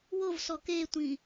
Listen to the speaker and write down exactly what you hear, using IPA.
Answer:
w o v s ɔ k e tʷ ĩ

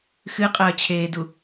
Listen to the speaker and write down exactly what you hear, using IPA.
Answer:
x ɨ qʼ ɐː t͡ɕʰ eː d u

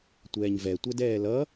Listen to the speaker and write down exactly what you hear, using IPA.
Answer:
tʷ ɛː ɲ v ɛ tʷ ɛ d ɛː l ʌ

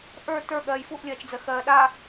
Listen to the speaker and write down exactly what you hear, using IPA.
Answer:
ʔ ə˞ t ə˞ ɠ ɜː j f u ʔ lʲ ɜː t͡ʃ d͡z ɜ x ɜː ɗ a

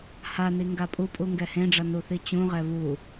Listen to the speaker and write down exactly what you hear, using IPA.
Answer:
h a n i ŋ ɡ a pʼ u pʼ u ŋ ɡ ɛ h ẽ ɖ͡ʐ ʌ n u θ i t͡ɕ ũ ʁ ɛ β u

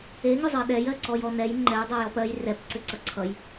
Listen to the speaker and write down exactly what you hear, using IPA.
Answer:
e ŋ ʏ zˤ ɜ ɗ ɛ j ɜ ǀ ɔ j ɔ n ɛ j ŋ͡ǃ ɛ j dˤ ɛ j ɔ p ɜ j r ɛ p ǀ ʏ ǀ ʌ ǀʰ ʌ j

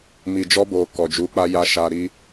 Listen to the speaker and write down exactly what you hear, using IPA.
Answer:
m i˨ d͡ʒ ɔ˧ b o˨ k ɔ˨ d͡ʒ u˨˦ k͡p a˧ j a˧ ʃ a˧ ɾ i˦

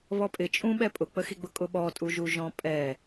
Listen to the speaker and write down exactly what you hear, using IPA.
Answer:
β ɔ pʼ ɪ t͡ʃʼ ũ ɓ ɛ pʼ ʊ k͡p ə x i ɡ͡b ʊ kʼ ʊ ɓ ɔ tʼ u ʒ u ʒ ɔ̃ pʼ ɛ

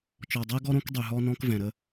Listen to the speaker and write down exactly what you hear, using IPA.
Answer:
t͡ʃ ɔ˨ dˤ ɛ˦ ɡ ɔ˦ ɾ õ˦ k dˤ y˨ ɦ ɔ˦ n ɔ̃˦ k v ɛ̃˨ ɾ ə˦

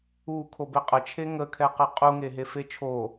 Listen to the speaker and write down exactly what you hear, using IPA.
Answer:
u kʰ o b e qʼ ə t͡ʃʰ e ŋ ə kʰ ɛ q ɘ qʼ u ŋ e ɦ e f e t͡ʃʰ o

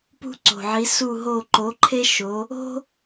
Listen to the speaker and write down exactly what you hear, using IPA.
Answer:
p ṳ˥ ǀ o̤˨˩ ʕ i˨˥ s u˦˨ ɦ o˦˨ ǃ o˨˥ ǃʰ e˥ ʃ o˨˥ | o̤˥

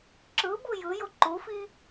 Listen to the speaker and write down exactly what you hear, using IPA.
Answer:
ǁ ɯ b u j ɯ j o ǃ u f i

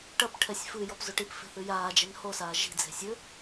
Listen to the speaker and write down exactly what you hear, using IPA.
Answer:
ʈ ɐ p ʈʰ ɛ sʲ f ɨ j ɔ p z o ʈ i p f e̤ θ ɨ j aː d͡ʒ ɛ n h o s aː ʒ i̤ d͡z e̤ sʲ ɘ

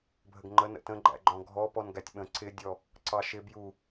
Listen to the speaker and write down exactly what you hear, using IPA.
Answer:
bʱ ə ɡ ŋ͡ǃ ə n ə̰ t ə̃ ɡ͡ǃ æ̰ ɡ͡ǃ ɔ̃ ɡʱ ɔ p ɔ n ɡ æ tʲ ɓ ə̃ ǀ ɪ dʲ ɔ | ǀ ɑ ʃ ɪ b j u

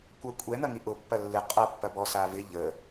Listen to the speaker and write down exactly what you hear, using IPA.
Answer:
kʷ ɐ kʷʼ ɛ n̪ ɐ ŋ i ʔ ʊ pː ɐ lː ɪ qʼ ɐ pː ɐ b ɔ s a v ɪ ʎ ə

